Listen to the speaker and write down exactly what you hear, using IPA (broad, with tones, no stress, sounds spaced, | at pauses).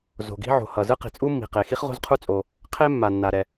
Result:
z o̤˩ ɡ i̤˥ ʕ o̤˩ h ʌ˩ z ɯ˥ q i̤˩ t͡sʼ u˥ mː i̤˩ q e˩ x i˥ χ ʁ o̤˥ z qʰ u˥ t͡sʼ o˩ | qʰ e˥ mː a˩ nː a˩ ɾ ɛ˩